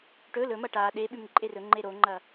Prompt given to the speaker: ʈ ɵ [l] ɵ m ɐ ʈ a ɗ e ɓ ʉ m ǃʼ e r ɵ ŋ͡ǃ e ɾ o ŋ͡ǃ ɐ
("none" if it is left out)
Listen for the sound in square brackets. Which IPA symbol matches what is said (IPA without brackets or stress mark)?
l